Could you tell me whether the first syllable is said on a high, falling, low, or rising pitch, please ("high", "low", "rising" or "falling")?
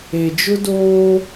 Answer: low